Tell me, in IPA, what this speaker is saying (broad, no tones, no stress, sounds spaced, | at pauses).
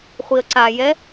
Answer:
χʷ i ə̯ ǀ a j ɛ